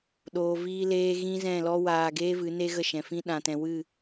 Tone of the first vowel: low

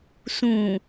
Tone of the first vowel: low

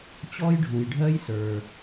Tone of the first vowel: high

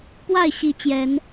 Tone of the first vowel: falling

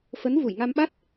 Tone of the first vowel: rising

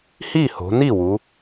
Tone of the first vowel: falling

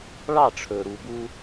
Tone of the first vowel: falling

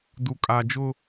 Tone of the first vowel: low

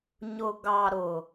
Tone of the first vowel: low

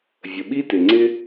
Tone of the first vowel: low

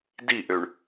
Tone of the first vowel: falling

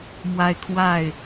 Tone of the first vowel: high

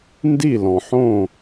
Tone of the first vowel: falling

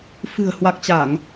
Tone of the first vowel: low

